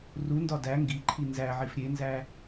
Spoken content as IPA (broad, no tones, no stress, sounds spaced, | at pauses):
r u n d ɒ d æ ŋ ɡ i ǃʰ i n z æ ʕ i f ɾʲ e n z æ